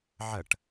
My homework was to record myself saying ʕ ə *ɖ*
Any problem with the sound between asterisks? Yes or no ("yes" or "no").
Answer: yes